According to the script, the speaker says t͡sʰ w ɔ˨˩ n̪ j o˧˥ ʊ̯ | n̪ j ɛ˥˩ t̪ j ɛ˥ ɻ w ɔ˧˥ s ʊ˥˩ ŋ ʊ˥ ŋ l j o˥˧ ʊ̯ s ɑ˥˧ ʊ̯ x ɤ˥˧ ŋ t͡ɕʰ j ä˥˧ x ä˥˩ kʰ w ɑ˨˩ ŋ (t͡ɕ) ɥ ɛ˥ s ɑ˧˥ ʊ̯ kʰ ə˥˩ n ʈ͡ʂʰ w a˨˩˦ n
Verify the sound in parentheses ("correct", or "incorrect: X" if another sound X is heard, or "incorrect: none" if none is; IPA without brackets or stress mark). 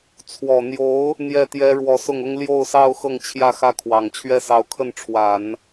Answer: incorrect: t͡ɕʰ